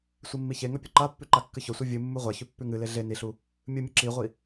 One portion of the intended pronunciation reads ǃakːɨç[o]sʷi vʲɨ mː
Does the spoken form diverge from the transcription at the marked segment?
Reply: yes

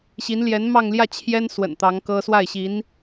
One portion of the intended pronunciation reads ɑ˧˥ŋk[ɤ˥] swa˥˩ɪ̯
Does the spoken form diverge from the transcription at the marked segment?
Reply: no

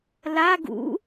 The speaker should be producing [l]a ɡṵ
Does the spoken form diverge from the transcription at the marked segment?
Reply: no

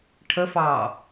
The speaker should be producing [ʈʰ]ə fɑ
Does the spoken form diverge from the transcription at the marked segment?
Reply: no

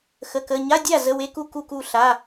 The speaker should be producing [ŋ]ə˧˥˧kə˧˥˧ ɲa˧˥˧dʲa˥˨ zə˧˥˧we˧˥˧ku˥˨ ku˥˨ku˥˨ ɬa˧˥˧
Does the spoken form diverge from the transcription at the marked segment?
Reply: yes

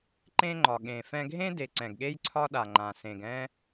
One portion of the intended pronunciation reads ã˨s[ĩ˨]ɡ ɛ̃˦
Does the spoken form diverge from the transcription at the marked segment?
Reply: yes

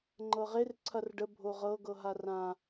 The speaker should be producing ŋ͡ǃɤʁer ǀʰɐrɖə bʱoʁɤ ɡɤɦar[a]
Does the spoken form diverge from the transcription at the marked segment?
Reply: yes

